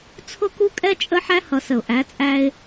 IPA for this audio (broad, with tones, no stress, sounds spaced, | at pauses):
t͡sʰ ʊ˦ k u˦ kʼ ɛ˦ t͡ʃʼ ə˦ ħ æ˦ h ʌ˨ s ə˨ ʊ̯ ʔ æ˨˦ t͡sʼ æ˦ ɪ̯